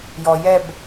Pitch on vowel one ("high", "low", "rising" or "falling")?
low